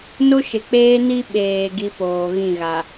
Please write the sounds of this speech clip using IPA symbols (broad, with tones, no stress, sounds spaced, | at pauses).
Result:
n o˦ ʃ ɪ˨ k͡p eː˦ n i˦ ɓ eː˨ ɡ i˦ p oː˨ ɣ ĩ˦˨ ɣ a˨